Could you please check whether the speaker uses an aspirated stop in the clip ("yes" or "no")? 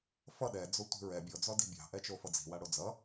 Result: no